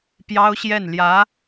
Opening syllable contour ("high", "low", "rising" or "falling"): high